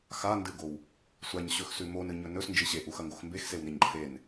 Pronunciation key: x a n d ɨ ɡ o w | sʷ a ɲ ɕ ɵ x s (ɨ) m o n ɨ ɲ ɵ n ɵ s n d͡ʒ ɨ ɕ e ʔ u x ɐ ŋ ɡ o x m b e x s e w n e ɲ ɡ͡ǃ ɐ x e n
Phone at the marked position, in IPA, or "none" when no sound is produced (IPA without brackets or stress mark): ʉ